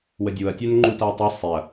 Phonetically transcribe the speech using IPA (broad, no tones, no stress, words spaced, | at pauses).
wədʲuɐ̯tʲœn ŋ͡ǃutaɐ̯tˤe sˤeɐ̯